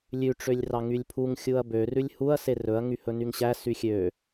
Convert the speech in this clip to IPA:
lʲʉ ʈ͡ʂølʲrɑŋylʲpʰuŋ xʲuɐ̯bø rʉlʲhuɐ̯ serɵɐ̯ ŋyhɵnyŋɕæ syxʲø

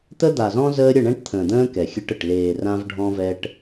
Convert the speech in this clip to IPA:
t̪ə˦d̪a˨zɔ̃˦ zəː˦ ɾʲə˦˨ɳɛ̃˦ʈt̪ʰə̃ː˨d̪ə̃ː˦ kɛ˨xʲɘ˦ʈə˨ʈ leː˨ rã˦vɖʱɔ̃˦vɛ˦ʈ

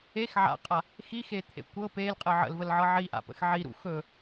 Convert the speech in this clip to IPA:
ex ʕa̰qʼa | xixet̪ʰḛ kʷɤ pelqʼə ʕə̰lvəlʕɤ ʕiʔa̰pə̰x ʕiɾṵ xɵ

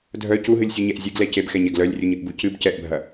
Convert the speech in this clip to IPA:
dʱœ cuɦɨlʲsʲuɲɛʔ zʲɨɡlɛ cebxɛɲɛɡ lœlʲrʲuɲɨʔbu cɨb cɛʔbʱɐ

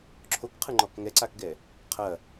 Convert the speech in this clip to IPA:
ǁʰokqʰɯŋ͡ǃɔk ŋɛǀakɡɛ | qʰɐ

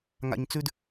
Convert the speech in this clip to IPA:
ŋa̰˩ɲt͡sʉ˨d

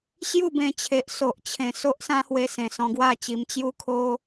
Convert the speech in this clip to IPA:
ɕju˥˧bẽ˧t͡ɕʰe˨ʔ so˨ʔt͡ɕʰẽ˨˩ so˦ʔsã˦hwe˧ sẽ˨˩sɔ̃˧ɡwa˥˧t͡ɕi˧m t͡ɕju˦kʰo˦

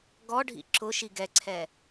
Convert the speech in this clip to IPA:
ɡɔɖʱḭ ǁʊ ʃiɡɛǀʰɛ

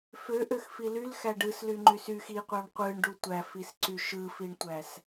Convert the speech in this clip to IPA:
føʔøxfi lylxæ ɖɯslyŋ͡ǃys yx iqʷɑɳ qʷɯɳɖu tʷæfisǀy ʃɯfiɳtʷæs

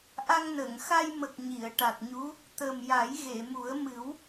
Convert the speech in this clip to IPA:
ʔa˧ŋnə˨˩˨ŋxa˧jmə˨˩k̚ ɲi˨˩˨ə̯ʈa˨˩t̚ɲu˧˥ | t̪ə˨˩m ja˨˩˦j ɣe˨˩˨mu˨˩˦ə̯mɨ˨˩˦w

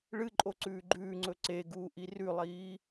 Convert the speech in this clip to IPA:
ɭɨǃʼo ǀʉːɡ͡ǃʉːŋ͡ǀɵ ǀe ɡuːʔirʉlˠiː

